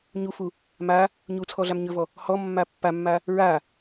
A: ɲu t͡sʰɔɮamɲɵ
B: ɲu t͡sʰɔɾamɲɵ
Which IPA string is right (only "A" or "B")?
A